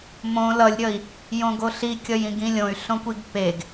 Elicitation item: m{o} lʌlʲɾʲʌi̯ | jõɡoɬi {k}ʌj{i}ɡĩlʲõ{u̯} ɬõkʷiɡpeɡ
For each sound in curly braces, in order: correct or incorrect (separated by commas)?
incorrect, incorrect, incorrect, incorrect